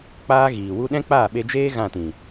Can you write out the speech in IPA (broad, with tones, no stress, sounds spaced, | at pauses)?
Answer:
k͡p aː˦ ɣ iː˨ w u˦ ɗ ɛ̃˦ k͡p aː˦˨ ɓ e˧ d͡ʒ eː˦ ɣ ã˦˨ t ĩ˨